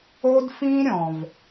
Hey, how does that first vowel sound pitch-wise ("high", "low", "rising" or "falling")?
high